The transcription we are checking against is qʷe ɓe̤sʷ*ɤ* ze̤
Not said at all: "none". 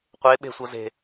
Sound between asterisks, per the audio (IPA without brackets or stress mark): ɤ